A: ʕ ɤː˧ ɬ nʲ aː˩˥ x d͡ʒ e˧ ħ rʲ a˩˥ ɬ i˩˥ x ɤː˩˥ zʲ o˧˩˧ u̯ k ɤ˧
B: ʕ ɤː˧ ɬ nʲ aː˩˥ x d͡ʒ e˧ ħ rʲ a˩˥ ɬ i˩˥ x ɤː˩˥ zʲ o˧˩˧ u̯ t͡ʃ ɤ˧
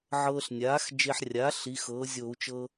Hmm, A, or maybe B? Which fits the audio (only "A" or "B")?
B